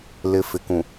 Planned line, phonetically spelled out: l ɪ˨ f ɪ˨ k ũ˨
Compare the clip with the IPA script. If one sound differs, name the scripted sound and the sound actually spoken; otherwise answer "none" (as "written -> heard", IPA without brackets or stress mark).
none